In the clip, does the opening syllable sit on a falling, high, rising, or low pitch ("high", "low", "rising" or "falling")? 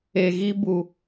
low